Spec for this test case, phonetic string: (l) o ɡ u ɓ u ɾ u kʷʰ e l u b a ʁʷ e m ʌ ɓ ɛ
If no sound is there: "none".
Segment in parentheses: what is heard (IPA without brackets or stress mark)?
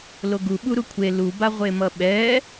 l